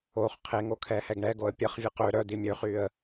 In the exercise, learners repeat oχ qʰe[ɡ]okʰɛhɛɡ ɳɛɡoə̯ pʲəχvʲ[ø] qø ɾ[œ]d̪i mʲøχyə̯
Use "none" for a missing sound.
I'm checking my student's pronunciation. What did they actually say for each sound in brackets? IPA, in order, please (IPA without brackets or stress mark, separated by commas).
ŋ, ə, œ